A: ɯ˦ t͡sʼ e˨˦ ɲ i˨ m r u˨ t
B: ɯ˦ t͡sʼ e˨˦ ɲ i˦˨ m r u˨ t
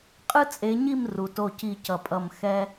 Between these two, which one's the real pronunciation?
B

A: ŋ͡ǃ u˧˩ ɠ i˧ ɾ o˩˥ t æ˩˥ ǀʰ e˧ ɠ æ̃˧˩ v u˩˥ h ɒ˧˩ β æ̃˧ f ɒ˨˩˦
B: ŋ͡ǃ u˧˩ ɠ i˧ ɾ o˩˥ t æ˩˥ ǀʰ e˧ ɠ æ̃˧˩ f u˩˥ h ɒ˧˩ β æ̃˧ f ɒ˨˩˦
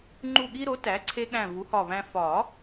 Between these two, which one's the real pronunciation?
A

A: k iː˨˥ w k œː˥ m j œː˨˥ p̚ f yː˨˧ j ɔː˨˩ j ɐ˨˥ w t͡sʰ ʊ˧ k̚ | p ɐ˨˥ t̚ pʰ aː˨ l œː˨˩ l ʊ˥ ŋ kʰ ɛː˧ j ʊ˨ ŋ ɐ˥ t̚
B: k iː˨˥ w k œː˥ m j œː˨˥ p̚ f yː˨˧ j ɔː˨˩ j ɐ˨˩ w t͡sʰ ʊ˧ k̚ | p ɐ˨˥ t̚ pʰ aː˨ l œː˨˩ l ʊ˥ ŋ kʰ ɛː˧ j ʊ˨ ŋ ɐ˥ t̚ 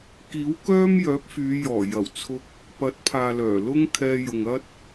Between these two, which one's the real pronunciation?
B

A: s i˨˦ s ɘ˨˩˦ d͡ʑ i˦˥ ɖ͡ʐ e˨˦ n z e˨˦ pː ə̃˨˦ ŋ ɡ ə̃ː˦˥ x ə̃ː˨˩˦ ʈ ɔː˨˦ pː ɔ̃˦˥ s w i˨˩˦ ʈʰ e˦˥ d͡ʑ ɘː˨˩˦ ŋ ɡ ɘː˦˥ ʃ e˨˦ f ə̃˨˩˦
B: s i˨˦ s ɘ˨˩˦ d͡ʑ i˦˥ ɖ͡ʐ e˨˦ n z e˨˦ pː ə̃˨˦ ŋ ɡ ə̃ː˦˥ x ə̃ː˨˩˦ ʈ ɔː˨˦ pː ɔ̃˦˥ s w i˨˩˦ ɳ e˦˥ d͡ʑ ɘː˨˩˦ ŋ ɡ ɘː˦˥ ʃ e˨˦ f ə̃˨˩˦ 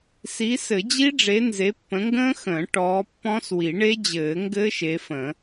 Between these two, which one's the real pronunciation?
B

